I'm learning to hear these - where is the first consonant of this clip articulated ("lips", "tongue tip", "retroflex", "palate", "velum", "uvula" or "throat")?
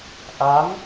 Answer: throat